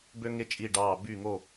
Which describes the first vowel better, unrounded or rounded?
rounded